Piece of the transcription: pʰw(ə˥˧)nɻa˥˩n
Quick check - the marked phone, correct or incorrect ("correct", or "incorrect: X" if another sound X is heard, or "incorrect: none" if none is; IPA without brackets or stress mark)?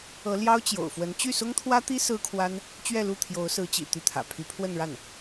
correct